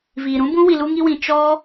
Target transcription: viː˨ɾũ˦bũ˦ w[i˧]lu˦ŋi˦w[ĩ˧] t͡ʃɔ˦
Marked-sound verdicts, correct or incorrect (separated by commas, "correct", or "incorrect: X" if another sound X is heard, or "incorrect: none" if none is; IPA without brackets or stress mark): correct, correct